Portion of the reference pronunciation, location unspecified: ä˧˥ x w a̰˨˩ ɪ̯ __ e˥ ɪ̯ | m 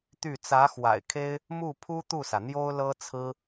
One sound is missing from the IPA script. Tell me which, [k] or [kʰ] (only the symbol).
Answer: kʰ